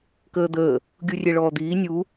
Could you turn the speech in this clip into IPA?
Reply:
k əː d̪ əː | ɡʲ u rʲ e ɭ ɔː d̪ iː nʲ u

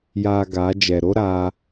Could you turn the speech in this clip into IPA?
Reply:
j aː˨ ɡ a˨˦ d͡ʒ ɛ˨ ɾ o˦ ɾ aː˦

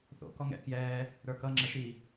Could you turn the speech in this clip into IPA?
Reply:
θ o̰ k ɔ ŋ ɛ̰ k j ɛː | ɾ ə˞ k ʌ ŋ͡ǁ ɛ ʃ i

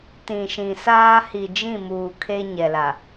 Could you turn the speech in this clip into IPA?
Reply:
t ĩ˨ ʃ ĩ˨ s aː˦ h i˨ d͡ʒ ĩ˦˨ m uː˨ kʰ e˦ ɲ ɛ˨ l a˨

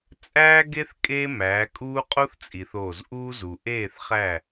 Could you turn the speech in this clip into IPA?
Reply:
t͡sʼ æː˦ ɡ e˦ θ kʼ eː˦ m æː˨˦ kʼ uː˦ qʼ o˦ θ t͡sʼ i˨ θ o˦˨ z ʔ uː˦ z u˨ ʔ eː˦˨ θ χ æ˦˨

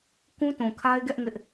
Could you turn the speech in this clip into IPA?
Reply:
k ũ˦ t ũ˨ kʰ a˦ ɪ̯ ɡ ɛ˦ ʔ ŋ ɪ˦ ʔ

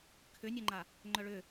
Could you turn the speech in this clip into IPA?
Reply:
kʰ ʏ nʲ œ ŋ͡ǃ a | ŋ͡ǃ œ ɭ ʏ

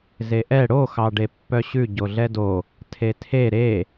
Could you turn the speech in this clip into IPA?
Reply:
z e ʔ ɛ ɽ o x ɑ ɖ e pː œ ɕ ʉ ɟ o ɮ ɛ d o | tʰ e tʰ e ɾ e

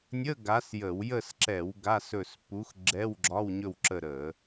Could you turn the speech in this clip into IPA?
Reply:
nʲ ə˧˥˧ ɡ a˨˥ s j ə˧˩˧ w j ə˦˨ s ǁ ɛ˧˩˧ w ɡ a˧˥˧ s ɵ˦˨ s p u˨˥ x ɡ͡ǁ ɛ˧˥˧ w ɡ͡ǁ ɒ˧˥˧ w ɲ ɵ˦˨ w ǁ ə˦˨ ɾ ə˧˩˧

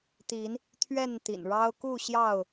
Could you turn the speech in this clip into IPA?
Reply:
t̪ i˨˦ n | t̪ʰ ɥ ɛ˥˨ n t̪ ḭ˨˩ n ɻ ɑ˦ ʊ̯ k u˥˨ ɕ j ɑ˥˨ ʊ̯

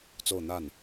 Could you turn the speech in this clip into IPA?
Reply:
t͡s o˥˧ ʊ̯ n̪ a˥˩ n

